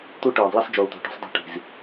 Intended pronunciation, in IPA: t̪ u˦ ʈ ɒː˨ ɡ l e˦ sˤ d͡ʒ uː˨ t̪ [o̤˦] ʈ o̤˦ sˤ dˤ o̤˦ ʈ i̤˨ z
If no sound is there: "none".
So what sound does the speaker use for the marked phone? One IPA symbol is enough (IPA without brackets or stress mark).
o̤˨